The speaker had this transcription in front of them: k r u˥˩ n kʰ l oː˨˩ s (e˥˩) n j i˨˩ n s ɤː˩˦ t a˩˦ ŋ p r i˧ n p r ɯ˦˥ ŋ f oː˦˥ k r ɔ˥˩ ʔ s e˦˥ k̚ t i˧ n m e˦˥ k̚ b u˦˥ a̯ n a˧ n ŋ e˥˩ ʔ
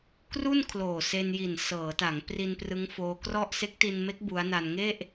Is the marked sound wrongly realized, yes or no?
yes